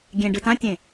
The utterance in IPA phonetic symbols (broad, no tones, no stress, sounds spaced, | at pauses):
ɡʲ ẽ ɖ ɯ t ã tʲ ẽ